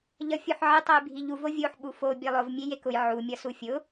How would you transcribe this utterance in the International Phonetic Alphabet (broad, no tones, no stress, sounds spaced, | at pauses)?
ʎ ʌ fʲ o ħ ʕ ɨ tˤ ʌ j bʱ i ʎ u v o vʲ o ħ ɓ u f o bʲ e lˠ ʊ v mʲ e j e k ʊ j ʕ u mʲ ʌ s u fʲ ʊ